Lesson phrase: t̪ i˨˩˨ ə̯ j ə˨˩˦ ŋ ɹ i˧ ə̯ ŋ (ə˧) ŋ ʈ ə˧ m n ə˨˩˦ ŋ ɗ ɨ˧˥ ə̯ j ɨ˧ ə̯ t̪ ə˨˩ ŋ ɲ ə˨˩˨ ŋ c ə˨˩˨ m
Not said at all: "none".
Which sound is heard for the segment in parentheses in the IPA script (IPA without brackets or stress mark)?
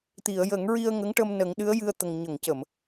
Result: ə˧˥